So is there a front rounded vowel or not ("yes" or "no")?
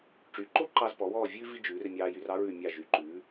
yes